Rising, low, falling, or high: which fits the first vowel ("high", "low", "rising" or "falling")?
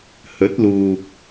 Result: rising